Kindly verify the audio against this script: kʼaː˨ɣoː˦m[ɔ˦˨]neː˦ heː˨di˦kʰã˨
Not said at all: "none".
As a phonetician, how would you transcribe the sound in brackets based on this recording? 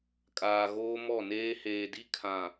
ɔ˦˨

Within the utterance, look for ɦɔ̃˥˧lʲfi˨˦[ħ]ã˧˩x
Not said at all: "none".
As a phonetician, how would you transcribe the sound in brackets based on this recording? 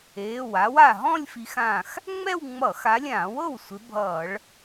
x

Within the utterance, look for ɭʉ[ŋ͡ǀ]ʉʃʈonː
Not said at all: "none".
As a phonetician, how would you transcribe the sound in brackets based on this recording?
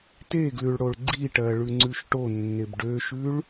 ŋ͡ǀ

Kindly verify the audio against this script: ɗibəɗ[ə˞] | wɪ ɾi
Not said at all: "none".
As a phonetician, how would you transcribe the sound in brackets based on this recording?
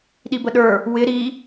ə˞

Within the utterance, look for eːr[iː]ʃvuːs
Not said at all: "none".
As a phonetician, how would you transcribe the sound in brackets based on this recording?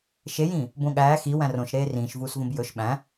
ĩː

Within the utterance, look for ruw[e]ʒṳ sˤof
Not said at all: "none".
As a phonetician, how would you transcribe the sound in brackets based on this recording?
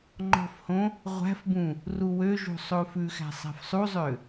ø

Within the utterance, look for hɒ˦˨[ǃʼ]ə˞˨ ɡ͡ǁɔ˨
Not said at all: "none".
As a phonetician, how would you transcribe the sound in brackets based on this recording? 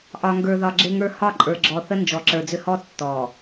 ǃʼ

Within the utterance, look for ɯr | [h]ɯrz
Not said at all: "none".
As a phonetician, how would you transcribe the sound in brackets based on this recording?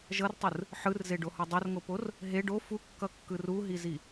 ħ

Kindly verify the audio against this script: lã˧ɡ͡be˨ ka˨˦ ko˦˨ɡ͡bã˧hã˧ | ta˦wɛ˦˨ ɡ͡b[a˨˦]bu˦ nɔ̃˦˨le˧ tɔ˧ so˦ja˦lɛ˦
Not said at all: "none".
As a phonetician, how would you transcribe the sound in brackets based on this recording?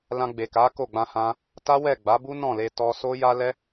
a˨˦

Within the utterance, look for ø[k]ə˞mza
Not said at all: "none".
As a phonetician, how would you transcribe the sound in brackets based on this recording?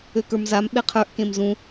k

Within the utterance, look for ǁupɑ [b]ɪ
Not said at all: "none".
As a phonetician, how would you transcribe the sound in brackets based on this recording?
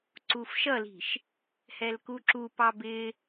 b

